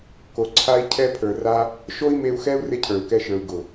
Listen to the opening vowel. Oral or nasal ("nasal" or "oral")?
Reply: oral